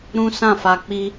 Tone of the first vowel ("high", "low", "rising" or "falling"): high